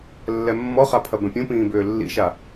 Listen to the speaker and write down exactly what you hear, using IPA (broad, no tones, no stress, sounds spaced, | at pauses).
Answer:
lː ɛ mː ɔ χ a pʰ ɐ b ɛ̃ pʲ ũ p ĩː b ʏː lː ḭ ʃ a